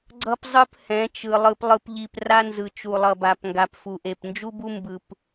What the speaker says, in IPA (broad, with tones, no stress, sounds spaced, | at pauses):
ɡ͡ǀ ʌ˦ p zˤ ɯ˦ p h ɛ̃˨˦ t͡ʃ ɯ˨ lˠ ɯ˨ p lˠ ɯ˨ p ʎ i˨ p r a˦ n z ɯ˨ t͡ʃ u˨ lˠ ʌ˨ b a˨ p ŋ ɡ a˨ p f u˨ ʔ e˨ p n d͡ʒ u˦ b u˦ m b ɯ˨ p